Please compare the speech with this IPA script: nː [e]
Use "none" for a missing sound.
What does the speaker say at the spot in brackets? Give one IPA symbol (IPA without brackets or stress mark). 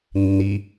i